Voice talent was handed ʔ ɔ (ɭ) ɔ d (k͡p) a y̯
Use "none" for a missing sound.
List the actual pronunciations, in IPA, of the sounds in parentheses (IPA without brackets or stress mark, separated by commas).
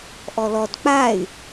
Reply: l, k͡p